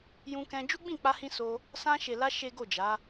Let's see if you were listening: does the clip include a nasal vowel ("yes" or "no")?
yes